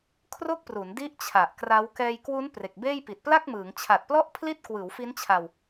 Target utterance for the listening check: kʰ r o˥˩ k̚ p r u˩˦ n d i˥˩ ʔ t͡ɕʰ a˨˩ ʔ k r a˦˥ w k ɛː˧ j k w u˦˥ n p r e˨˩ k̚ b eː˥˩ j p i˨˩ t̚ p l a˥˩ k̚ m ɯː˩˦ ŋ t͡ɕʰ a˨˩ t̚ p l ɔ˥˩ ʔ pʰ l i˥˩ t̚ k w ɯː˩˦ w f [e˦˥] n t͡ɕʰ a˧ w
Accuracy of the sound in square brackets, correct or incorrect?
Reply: incorrect: i˦˥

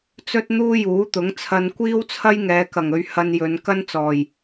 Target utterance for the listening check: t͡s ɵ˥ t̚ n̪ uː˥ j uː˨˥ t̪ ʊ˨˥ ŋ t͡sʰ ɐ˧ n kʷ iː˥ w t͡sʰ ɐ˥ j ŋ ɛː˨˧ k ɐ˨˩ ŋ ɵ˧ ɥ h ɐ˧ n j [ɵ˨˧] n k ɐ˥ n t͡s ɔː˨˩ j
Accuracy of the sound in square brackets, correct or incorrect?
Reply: correct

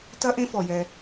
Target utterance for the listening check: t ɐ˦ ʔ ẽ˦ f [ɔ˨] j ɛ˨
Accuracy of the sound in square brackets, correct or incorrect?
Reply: correct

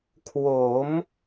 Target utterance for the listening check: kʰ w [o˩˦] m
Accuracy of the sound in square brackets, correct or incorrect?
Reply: correct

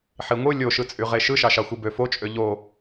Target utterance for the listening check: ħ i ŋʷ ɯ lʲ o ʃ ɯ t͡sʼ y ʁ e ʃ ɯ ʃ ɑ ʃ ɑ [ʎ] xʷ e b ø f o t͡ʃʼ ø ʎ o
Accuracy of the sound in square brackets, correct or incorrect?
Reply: incorrect: none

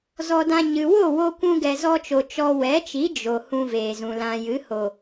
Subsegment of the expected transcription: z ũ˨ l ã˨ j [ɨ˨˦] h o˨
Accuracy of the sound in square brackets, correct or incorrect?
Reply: correct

